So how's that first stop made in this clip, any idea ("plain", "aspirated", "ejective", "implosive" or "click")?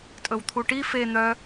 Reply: ejective